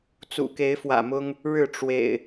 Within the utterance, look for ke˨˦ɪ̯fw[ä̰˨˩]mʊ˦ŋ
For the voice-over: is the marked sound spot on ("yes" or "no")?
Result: yes